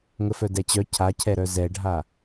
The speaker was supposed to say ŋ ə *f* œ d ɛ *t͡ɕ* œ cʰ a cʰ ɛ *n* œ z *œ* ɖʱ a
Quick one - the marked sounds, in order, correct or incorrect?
correct, correct, incorrect: ɾ, incorrect: ɛ

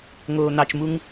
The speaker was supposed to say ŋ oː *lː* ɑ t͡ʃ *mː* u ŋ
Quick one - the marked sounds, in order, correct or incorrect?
incorrect: n̪, incorrect: m

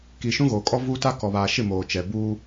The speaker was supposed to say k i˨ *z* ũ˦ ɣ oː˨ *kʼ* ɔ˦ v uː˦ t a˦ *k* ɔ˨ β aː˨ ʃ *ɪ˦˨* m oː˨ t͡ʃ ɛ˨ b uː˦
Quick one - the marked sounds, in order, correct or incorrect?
incorrect: ʃ, correct, correct, correct

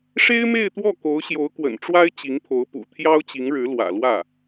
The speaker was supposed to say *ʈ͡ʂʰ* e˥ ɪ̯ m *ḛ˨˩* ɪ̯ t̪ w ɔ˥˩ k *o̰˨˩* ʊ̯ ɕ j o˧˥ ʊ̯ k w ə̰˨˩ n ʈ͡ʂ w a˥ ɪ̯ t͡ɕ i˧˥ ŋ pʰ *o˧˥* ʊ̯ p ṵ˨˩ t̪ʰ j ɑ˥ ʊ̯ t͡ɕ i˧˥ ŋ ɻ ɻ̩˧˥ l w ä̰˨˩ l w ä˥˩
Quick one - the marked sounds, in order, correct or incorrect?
incorrect: ʂ, incorrect: e˥˧, incorrect: o˧˥, correct

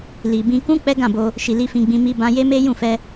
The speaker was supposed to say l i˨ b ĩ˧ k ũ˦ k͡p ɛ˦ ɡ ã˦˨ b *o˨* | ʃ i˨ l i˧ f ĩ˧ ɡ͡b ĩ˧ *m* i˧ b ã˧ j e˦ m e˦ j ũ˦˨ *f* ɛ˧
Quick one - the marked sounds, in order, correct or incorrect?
incorrect: o˧, correct, correct

